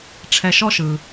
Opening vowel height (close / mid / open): mid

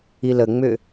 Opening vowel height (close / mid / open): close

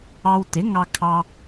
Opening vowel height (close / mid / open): open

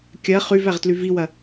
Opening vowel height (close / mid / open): open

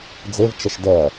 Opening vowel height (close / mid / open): mid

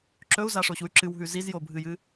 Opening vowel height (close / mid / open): mid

